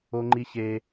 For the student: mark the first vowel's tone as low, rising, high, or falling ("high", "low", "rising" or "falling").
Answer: high